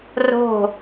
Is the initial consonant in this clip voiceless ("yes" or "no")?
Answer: no